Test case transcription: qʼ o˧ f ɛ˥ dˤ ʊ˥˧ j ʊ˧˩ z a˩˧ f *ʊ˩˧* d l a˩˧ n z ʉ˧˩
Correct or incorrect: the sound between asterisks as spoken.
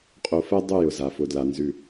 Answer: correct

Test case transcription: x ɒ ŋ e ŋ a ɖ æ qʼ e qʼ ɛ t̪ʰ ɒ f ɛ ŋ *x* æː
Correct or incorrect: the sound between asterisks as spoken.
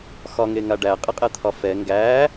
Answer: incorrect: ɡ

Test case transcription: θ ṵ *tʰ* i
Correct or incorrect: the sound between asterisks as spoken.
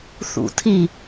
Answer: correct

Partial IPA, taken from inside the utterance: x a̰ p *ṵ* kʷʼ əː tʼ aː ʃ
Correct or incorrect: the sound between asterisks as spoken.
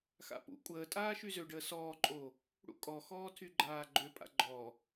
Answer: correct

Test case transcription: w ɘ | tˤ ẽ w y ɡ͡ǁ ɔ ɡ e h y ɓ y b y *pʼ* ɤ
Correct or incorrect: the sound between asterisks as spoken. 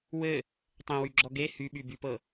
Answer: incorrect: p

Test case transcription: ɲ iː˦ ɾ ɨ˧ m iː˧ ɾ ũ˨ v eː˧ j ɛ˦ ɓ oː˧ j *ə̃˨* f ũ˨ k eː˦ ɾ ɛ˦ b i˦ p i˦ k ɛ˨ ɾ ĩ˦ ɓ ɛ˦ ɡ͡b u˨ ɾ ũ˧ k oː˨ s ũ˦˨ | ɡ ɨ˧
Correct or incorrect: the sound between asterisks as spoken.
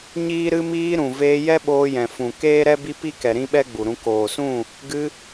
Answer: incorrect: ɛ̃˨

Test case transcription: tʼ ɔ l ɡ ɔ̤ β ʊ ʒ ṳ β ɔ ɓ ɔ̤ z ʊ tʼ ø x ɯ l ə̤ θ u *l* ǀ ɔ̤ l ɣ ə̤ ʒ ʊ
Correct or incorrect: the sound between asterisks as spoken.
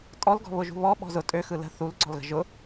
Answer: correct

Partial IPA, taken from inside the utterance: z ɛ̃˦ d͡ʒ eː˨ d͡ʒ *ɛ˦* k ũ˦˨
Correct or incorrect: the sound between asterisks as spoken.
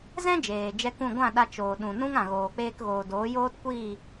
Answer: correct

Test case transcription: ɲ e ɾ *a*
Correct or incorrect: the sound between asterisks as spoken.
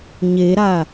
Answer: correct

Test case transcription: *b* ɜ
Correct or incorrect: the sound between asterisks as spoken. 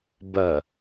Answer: correct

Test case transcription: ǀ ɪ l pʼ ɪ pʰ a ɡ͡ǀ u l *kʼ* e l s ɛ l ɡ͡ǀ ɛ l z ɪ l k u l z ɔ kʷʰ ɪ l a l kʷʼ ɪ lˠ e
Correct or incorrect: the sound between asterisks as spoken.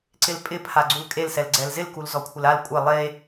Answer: correct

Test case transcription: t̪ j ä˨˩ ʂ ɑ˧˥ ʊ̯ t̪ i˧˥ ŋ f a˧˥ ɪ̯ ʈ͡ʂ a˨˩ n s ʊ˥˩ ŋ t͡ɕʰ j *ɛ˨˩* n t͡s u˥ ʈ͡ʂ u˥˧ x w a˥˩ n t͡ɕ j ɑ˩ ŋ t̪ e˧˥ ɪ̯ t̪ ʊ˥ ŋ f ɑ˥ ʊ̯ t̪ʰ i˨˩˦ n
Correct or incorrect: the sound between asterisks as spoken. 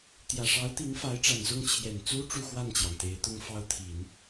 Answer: correct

